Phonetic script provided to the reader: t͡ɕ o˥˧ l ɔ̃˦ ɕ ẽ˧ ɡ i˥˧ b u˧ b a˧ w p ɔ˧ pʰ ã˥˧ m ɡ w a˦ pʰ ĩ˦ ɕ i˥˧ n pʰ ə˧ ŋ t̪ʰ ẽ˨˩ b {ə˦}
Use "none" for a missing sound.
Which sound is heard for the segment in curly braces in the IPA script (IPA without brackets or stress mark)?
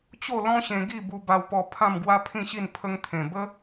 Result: ə˦